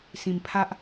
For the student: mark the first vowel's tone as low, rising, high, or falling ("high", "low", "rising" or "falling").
low